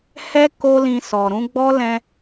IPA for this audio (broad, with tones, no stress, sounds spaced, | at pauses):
h ɛ˦ k o˦ l ĩ˧ s ɔ˨ ɾ ũ˧ ɡ͡b ɔ˦ l ɛ̃˦